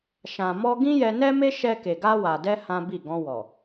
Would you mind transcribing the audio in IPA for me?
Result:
ʃ ã˨ m ɔ˧ ɡ ĩ˦ j ɛ˧ n ɛ˦ m e˦ ʃ ɛ˧ k e˨ ɡ a˧ w a˨ d ɛ˧ h ã˦ b i˦˨ ɡ ɔ̃˧ w ɔ˨

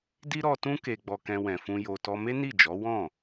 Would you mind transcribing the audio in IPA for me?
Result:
d i˦ ɾ ɔ˧ t ũ˦ k e˧ ɡ͡b ɔ˧ k ɛ̃˧ w ɛ̃˨ f ũ˧ j o˧ t ɔ˦ m e˦ n i˦˨ d͡ʒ ɔ˨˦ w ɔ̃˦˨

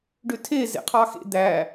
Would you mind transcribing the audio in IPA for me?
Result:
ɖ ø tʰ e z ḛ qʰ ɑ x ḛ d̪ æ

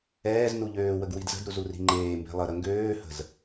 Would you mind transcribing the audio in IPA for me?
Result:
ɛː z n u ʎ øː w ə ɡ w i d z ə̤ d ɾ u z u r i̤ ŋ͡ǃ eː m b e̤ lˠ ə ɾ ə ŋ ɡ øː h ə̤ z

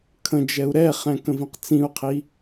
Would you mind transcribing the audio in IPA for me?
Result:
kʰ ə̃ d͡ʒ ɛ u̯ ɾ ɛ χ ɛ̃ k ə̃ v ĩ q t͡s ĩ u̯ qʰ i

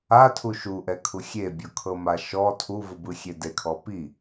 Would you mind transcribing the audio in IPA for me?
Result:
a tʰ u ʃ u ʔ ɛ kʰ u xʲ e bʲ ɔ kʰ ɤ m a ʃ ɔ tʰ u v ɯ b ɯ xʲ e d e kʰ ɔ p i

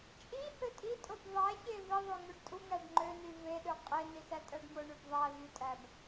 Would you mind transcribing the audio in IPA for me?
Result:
t͡ʃʼ i h ø tʼ i tʼ o b ðˤ æ ç e v i ðˤ ø ŋ o ɖ tʼ u ŋ æ ɖ ŋ͡ǃ ø n y v e ɗ ø qʼ e n i s æ tʼ æ ɖ m o ɳ y b ðˤ æ v y tʼ æ b

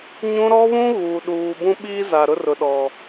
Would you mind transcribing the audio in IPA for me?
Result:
ɲ ũ˦ ɾ ɔ˦ β ũ˦ ɣ uː˨ ɗ uː˨ b ũ˦ ɓ iː˦ z a˨ ɾ ʊ˦ r ʊ˨ ɗ ɔ˨

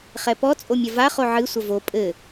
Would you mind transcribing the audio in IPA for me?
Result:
χ ɛ p ɔ t͡sʼ o mʲ ɐ v a χ o ʕ ɨ sʷ ɐ v o pʼ ɘ

